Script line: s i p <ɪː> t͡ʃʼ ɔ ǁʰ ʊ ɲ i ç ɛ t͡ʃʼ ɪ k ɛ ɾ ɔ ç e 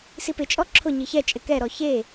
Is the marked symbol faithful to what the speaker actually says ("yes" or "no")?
no